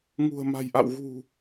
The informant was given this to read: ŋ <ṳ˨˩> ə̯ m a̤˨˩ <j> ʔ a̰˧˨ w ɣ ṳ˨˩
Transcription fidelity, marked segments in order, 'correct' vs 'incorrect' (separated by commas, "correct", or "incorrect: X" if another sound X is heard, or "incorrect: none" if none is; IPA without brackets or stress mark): correct, correct